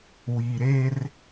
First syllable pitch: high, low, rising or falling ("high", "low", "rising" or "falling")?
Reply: low